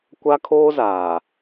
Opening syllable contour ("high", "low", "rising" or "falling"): high